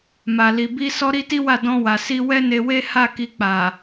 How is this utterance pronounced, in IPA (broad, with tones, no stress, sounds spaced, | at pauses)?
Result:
m a˨ l i˨ b i˧ s ɔ˦ ɾ i˦ t i˦ w a˦˨ d ɔ̃˧ w a˨ s i˧ w ɛ˦ n e˧ w e˦ h a˦˨ k i˧ k͡p a˨